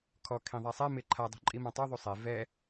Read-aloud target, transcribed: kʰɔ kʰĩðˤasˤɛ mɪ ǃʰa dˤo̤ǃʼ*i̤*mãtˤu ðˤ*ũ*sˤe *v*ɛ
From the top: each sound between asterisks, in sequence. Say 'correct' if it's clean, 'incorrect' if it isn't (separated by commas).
incorrect, incorrect, correct